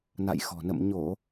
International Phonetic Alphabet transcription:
n a̰˧˨ j x ɔ̤˨˩ n ə̰˧˨ m ɲ o˧˩˨

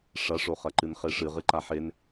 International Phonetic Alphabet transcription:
ʂ ɐ ʂ o χ ɐ ǃ ɨ n χ e ʂ ɨ ʁ ɨ ǃ a ħ e n

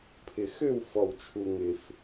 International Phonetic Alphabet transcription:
pʰ ɪ˩ x ø˥˩ w f ɔ˩ w t͡ʃʰ u˩ ŋ ɪ˩ f

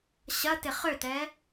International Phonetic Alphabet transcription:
ɕ ɐ t ɪ χ ø t ɛ

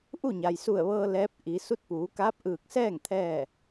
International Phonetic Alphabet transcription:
ʔ u˥˨ ɲ a˩ j s u˧˩ ə̯ ʋ ɤː˧ l ɛː˧˥ p̚ ʔ i˩˧ s u˧˥ t̚ p uː˩˧ k aː˧˥ p̚ ʔ ɯː˧˩ k̚ s ɛː˥˨ ŋ t̪ʰ ɛː˥˨

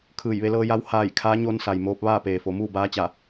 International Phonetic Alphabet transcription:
kʰ ɯː˧˩ j ʋ e˧ l ɤː˧ j a˧˥ w h aː˧˩ j kʰ aː˧˥ ɲ o˧ n s a˩ j m oː˧ p̚ ʋ aː˥˨ p eː˩ f o˩˧ m uː˥˨ b aː˧˥ t͡ɕ a˧˩

